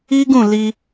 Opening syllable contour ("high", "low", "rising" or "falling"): high